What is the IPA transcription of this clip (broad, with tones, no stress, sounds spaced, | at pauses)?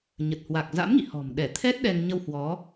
ɲ ə˨˩ t̚ h w a˨˩ k̚ z a̰˧˥ m ŋ ḭ˧˨ h ɔ̤˨˩ m ɗ ɛ˧˩ t̪ʰ ɛ˦˥ t̚ ɗ ɛ˧ ŋ ɲ ə˧ w h w ɔ˨˦